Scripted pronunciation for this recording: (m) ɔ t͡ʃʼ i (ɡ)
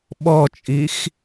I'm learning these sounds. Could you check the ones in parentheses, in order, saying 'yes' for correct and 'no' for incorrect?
no, no

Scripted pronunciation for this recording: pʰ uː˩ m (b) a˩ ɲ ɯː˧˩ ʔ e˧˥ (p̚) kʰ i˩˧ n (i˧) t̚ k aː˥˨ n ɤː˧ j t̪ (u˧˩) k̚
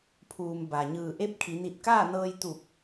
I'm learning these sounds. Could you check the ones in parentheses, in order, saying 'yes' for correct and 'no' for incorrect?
yes, yes, no, yes

